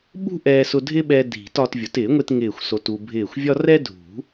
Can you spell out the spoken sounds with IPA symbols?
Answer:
ɓ ṳ˥ ʔ ɛː˧ s ʊ˧ dʱ ɪ˥ ɓ ɛ˧ dʱ i̤˨˩˦ t ɒ˧ t vʲ ʊ˨˩˦ t ɪː˨˩˦ ŋʷ e˧ t ŋ ɪː˧˩ xʷ s o˧ t u˧ bʱ ɪː˧˩ xʷ vʲ ɒ˥ r ɛ˥ dʱ ṳ˨˩˦

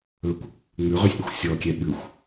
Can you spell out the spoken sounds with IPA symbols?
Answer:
ɵ kʷ | ŋ͡m ʉ ʁ y sʲ ɗ ɵ xʷ sʲ ɔ kʲ ɛ ɓ ʉ xʷ

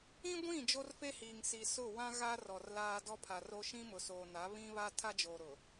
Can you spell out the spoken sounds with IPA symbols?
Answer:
ĩ˦ ɡʷ ĩ˦˨ d͡ʒ o˦ r f e˦ h iː˨ ŋ s i˨ s ʊ˦˨ w ã˦ ɣ a˦ r ɔ˨ r l aː˦ d ɔ˦ pʰ a˨ r o˦ ʃ ĩ˦ m ʊ˨ s oː˨ n a˨˦ β ĩ˦ β a˦ tʰ a˦ d͡ʒ oː˨ ɾ ʊ˨

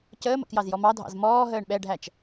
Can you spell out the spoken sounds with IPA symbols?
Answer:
c əː m ə̰ k j ɑ z j ɔ m ɑ dʱ ɑ̰ z m ɔː ɦ əː ɳ ɓ ɛ ɖʱ æ t͡ʃ

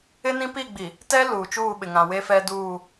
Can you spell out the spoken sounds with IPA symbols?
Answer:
ɪ˦ n ĩ˦ p i˦˨ ɡ͡b i˨ | t ɛ˦ l uː˨ t͡ʃ uː˦˨ ɓ ɪ˨ ŋ ã˨ w e˦ f ɛ˦ d uː˦˨

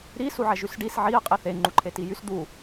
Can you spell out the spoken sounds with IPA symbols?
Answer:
ɾ i s u ʕ ɛ ʒ y s ɖ i s ʕ i ə̯ qʼ e θ e ŋ͡ǃ u ǃʰ e t i j y s d̪ u

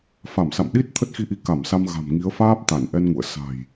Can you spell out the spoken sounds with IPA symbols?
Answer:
f a˧˩ m s a̰˧˨ m ɗ i˦˥ t̚ t̪ʰ ə˦˥ t̚ x i˧ ʔ i˨˦ k a˧˩ m s a˧ m ɣ a̤˨˩ m ŋ i˨˦ ə̯ f aː˦˥ p̚ t̪ a˧˩ n ʔ ɛ˧ n ŋ ṵ˧˨ ə̯ s a̤˨˩ j

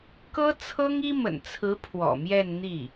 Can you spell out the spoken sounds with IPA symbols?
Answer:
k ɤ˥ t͡sʰ ɤ˥ ŋ i˥ m ə̰˨˩ n t͡sʰ ɹ̩˧˥ pʰ w ɔ̰˨˩ m j ɛ˥˧ n n̪ i˥˩

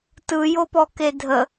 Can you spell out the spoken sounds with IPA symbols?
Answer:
t ɯ j o p ɔ k e dʱ ə

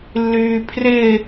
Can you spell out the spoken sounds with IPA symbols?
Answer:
lː yː pʰ r ɪ

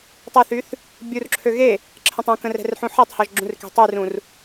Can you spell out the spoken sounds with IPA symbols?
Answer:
tˤ ə θ y θ | bʲ u r ǁʰ ø ɣ e | ǁʰ ə̃ tˤ ũ k ə̃ r ɛ̤ r ħ ũ ħ e tˤ h ɔ ʒ ɡ͡ǁ ũ r k e̤ tˤ y r ũ r

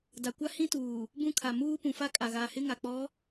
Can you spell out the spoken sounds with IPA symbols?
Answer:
d a˨ kʷ a˦ h ĩ˦ t uː˨ | b ũ˦ kʰ a˨ m uː˦ p ũ˨ f a˦ kʼ a˨ ɣ aː˨ h ɪ˦ ŋ a˨ k͡p ɔ˨˦

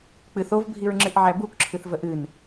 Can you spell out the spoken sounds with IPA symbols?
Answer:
k͡p ɨ θ o v bʱ i ɹ ŋ͡ǁ ɨ ʔ ʕ æ b u k ǁʰ ɨ θ v ə ʔ ɨ n

